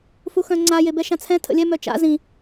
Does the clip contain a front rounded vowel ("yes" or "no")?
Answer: yes